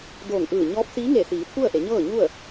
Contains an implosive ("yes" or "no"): no